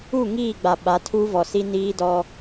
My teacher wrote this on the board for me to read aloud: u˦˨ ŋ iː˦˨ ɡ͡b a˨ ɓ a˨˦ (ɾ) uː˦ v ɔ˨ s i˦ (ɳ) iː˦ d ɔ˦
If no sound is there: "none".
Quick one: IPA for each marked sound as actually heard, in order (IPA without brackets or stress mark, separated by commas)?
tʰ, n